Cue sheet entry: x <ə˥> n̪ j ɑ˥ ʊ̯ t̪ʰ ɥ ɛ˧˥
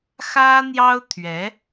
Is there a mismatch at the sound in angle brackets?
yes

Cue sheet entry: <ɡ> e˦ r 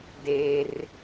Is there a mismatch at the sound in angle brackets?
yes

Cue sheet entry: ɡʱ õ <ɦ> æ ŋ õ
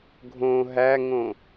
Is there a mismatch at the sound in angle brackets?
no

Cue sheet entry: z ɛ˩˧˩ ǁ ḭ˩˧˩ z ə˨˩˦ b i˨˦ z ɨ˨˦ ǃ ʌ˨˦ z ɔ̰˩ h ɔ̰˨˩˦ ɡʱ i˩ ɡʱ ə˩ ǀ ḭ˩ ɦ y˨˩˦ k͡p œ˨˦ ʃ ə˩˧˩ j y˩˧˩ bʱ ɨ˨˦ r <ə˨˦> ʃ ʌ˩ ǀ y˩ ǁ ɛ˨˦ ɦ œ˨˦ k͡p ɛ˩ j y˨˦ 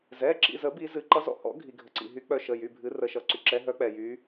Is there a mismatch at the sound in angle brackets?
no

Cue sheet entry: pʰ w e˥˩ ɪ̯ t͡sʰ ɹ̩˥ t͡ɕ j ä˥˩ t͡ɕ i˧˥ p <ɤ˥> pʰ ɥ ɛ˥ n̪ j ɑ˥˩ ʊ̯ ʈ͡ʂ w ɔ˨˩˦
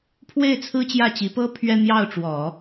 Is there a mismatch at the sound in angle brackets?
no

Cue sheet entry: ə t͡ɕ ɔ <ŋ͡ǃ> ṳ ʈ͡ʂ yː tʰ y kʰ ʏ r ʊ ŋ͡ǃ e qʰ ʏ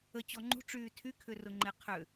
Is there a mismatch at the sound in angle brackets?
no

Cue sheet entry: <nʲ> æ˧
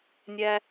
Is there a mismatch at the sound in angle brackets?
no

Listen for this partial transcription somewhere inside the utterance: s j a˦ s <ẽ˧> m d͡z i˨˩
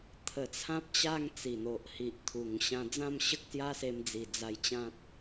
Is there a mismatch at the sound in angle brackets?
yes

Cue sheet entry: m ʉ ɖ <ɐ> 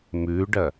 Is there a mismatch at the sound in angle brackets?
no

